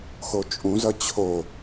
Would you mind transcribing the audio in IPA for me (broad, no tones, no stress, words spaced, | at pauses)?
xot͡ʃʼũzʌ t͡ɕʰo